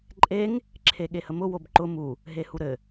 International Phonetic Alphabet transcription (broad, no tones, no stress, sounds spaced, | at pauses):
ǃʼ e ŋ | ǁʰ e ɠ e h ə m ʊ w o b ǃ ʊ m u | ɦ e h u ɾ ɘ